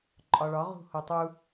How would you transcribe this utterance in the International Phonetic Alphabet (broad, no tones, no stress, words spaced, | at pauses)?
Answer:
ǃʼɒɭɒ ʁṳhotˤu